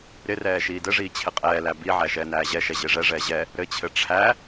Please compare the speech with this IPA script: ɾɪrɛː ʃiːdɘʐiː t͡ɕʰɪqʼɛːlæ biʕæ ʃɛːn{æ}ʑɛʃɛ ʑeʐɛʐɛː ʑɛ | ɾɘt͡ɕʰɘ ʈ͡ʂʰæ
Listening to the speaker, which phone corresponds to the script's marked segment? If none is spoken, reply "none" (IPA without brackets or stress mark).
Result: æː